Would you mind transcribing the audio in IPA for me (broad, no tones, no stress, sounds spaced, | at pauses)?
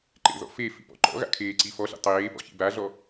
ǃ ḛ ð ɔ̰ f e f ḭ p ɔ̰ ǃ ɔ̰ ɣ a̰ kʰ eː ǀ i f ɔ ɬ ḭ tˤ eː p ɔ̰ ç ḭ b a ɮ ɔ